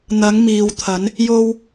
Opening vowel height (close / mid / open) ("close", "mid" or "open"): open